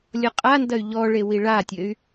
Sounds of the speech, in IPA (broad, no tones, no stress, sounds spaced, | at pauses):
lʲ ɔ qʼ a n d ɐ y̯ ʎ ɔ ɭ e w i ɭ a tʲ ɘ y̯